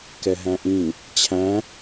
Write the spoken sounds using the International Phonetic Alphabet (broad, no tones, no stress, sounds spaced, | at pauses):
k ɛ ɦ æ̃ ʔ ĩ | t͡ɕʰ æ̃